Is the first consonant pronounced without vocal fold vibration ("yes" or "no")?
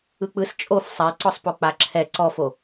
yes